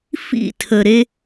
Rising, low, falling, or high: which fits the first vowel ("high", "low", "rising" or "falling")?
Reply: falling